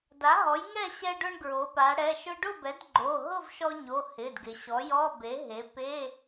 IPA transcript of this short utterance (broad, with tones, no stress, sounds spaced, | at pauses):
d a˩˥ ɦ ɔ˩˥ j ŋ ɛ˥˨ ɕ ɛ˧ ɖ ʊ˧ ɳ ɡ ɹ o˩˧ p a˩˧ ɽ ɛ˩˧˩ ʃ ʊ˧ ɖ ʊ˥˨ b ɛ˩˥ d ɡ͡ǃ o˩˧˩ ɦ ʊ˥˨ v ʃ ɔ˧ ɲ o˩˧˩ h ɪ˩˧˩ d ɡ ɪ˩˧ ɕ ɔ˩˥ j ɔ˧˥˧ b e˩˥ ɦ e˩˥ p e˧˥˧